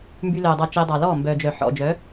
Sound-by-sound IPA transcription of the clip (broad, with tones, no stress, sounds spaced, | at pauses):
m b y˧ l œː˨ dˤ ɑ˧ t͡ʃ e˧ dˤ ɑ˨ l ɔː˦˨ m b œː˨ d͡ʒ œ˨ ħ ɔ̰˨ d͡ʒ œ˨˦